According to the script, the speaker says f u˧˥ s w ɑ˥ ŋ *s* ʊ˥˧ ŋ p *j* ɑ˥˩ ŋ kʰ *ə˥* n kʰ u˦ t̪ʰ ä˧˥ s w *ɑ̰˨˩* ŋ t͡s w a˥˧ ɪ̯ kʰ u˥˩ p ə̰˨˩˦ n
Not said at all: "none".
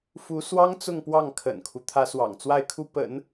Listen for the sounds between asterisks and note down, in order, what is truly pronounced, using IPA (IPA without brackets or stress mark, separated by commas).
t͡s, w, ə̰˨˩, ɑ̰˨˩